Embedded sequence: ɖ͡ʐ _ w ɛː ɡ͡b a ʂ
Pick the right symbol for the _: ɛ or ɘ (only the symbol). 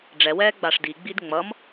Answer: ɛ